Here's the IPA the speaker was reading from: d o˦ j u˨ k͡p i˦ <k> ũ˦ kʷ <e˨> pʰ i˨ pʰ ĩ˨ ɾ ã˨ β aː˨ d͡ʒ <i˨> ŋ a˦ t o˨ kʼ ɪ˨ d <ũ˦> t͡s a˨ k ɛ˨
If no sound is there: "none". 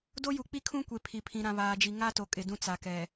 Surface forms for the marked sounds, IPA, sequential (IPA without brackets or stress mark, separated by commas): kʰ, e˨, i˨, ũ˦